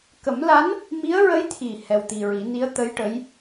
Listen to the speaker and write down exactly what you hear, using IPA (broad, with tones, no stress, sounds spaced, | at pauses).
k ə˨˩˦ m l a˧˥ n | m i˧˥ ə̯ ɹ ə˧˥ j t̪ʰ i˨˩ h ɛ˧ w t̪ i˧ ɹ i˨˩˦ n i˧˥ ə̯ t̪ ə˧˥ j ʈ ə˧˥ j